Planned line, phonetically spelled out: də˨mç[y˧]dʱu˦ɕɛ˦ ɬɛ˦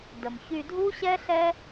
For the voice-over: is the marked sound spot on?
yes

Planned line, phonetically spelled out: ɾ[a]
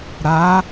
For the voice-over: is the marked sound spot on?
no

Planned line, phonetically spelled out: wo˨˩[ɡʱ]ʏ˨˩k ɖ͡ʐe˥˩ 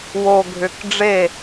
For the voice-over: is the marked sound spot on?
yes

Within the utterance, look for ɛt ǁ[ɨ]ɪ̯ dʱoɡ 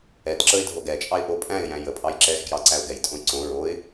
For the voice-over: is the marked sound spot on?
no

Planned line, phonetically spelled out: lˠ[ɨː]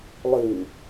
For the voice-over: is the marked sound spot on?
yes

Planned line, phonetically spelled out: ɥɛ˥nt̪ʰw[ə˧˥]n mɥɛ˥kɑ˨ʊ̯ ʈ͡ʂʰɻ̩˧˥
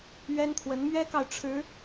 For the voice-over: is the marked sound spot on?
yes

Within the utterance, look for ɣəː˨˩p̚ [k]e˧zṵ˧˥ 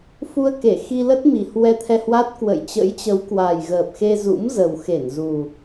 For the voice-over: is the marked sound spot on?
no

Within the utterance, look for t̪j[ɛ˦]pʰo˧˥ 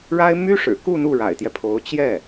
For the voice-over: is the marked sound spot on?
yes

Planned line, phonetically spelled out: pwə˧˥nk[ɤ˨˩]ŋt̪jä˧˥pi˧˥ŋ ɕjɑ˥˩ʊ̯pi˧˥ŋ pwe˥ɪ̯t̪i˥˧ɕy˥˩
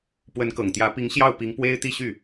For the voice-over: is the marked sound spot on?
yes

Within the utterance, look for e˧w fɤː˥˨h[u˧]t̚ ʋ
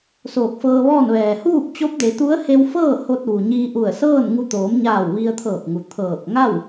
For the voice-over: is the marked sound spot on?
no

